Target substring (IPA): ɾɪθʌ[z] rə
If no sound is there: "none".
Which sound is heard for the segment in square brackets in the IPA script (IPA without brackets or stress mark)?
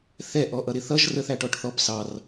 ʒ